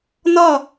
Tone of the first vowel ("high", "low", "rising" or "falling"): falling